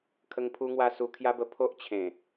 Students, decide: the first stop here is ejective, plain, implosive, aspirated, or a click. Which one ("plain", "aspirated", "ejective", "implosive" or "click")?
aspirated